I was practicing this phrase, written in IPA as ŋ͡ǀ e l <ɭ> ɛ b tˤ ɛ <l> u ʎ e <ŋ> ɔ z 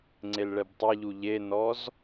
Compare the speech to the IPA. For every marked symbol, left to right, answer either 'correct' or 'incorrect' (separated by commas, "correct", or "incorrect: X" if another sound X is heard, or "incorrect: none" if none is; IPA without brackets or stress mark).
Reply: correct, incorrect: ʎ, incorrect: n